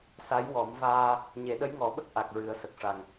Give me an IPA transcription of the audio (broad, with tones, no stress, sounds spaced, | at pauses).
s a˧˥ j w ɔ˨˩˦ m v aː˧ | ɲ e˨˩˦ ɗ ə˧˥ j ŋ ɔ˨˩˦ ɓ ə˦˥ k̚ ʔ a˨˩ k̚ ɹ ɨ˨˩˦ ə̯ s ə˨˩ k̚ ʂ a˨˩ ŋ